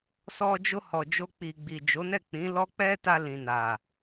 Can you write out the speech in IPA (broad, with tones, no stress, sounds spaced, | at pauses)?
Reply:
s ɔ˧ d͡ʒ o˧ h ɔ˨ d͡ʒ o˧ k͡p i˨ ɡ͡b i˨ d͡ʒ o˨˦ n ɛ˦˨ k͡p ĩ˨˦ l ɔ˦ k͡p ɛ˦ t a˧ l ĩ˨ n a˨